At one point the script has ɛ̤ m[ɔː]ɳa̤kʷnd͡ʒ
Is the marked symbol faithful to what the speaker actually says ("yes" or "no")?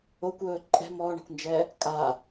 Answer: yes